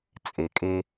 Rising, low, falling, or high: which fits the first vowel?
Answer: low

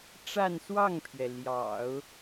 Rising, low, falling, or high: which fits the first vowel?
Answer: falling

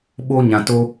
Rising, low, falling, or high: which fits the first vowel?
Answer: high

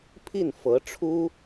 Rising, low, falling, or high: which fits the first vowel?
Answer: falling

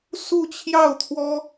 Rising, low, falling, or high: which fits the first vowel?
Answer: falling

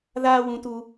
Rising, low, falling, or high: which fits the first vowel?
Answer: high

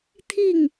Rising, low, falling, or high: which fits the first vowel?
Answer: falling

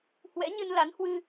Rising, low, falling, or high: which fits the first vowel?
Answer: rising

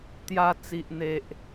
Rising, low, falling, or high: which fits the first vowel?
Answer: high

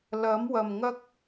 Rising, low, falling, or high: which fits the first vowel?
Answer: rising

